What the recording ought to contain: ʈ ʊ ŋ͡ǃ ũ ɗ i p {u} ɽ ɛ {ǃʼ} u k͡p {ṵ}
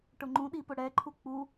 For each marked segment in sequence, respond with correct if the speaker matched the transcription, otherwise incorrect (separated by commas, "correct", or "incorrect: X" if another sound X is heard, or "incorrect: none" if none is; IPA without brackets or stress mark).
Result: incorrect: ʊ, incorrect: ǃʰ, incorrect: u